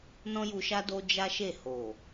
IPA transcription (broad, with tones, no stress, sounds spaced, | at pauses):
n ɔ̃˦ j u˧ ʃ a˦ d o˦ d͡ʒ a˦ ʃ e˦˨ h o˨